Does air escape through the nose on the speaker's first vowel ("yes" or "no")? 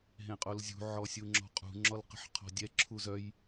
yes